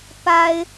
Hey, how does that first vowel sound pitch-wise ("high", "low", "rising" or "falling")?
high